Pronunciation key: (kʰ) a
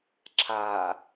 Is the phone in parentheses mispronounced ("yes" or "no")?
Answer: yes